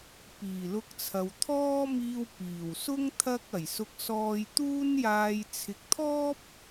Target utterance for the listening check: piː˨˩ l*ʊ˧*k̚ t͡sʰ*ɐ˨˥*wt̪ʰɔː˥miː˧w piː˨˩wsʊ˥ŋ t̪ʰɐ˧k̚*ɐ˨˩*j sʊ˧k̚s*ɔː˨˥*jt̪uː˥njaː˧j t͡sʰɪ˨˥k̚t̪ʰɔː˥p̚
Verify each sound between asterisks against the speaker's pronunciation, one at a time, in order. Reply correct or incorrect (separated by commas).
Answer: correct, incorrect, correct, incorrect